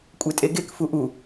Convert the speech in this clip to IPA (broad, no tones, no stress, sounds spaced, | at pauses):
kʷʼ e tʼ e ɡ e k f u ʔ u